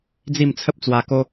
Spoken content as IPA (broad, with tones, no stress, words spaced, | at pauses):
d͡zi˥˧mt͡sʰə˦p̚t͡swa˧ko˦